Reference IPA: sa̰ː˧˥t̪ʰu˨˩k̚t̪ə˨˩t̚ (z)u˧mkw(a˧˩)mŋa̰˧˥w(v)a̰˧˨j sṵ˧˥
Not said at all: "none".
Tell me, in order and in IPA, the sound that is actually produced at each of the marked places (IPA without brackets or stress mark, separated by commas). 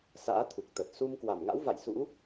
s, a˧˩, v